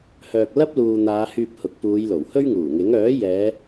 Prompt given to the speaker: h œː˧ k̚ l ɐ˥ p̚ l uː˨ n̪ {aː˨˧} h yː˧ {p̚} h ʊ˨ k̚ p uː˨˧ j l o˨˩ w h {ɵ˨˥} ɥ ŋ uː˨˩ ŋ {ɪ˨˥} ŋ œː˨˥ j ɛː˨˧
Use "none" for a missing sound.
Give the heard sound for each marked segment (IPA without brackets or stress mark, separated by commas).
aː˨˧, p̚, ɵ˥, ɪ˨˥